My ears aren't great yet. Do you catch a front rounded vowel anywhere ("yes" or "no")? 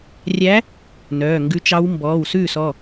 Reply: yes